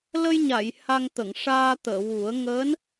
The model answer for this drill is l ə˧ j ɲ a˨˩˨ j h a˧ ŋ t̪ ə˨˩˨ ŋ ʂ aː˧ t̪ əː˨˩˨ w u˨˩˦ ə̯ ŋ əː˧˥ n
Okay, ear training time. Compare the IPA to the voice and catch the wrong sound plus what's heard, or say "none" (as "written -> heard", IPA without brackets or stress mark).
none